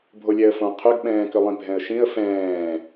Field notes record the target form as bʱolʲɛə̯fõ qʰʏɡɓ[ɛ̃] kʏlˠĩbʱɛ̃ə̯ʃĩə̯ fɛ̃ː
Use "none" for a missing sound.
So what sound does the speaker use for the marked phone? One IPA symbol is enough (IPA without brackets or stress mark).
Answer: ɛ̃ː